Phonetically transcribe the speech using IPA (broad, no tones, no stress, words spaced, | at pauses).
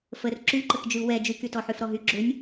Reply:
fər ǁyǃək d͡ʒyu̯wɛ d͡ʒykytɔħyf ɾɔɦy ɡ͡ǁʏnʲ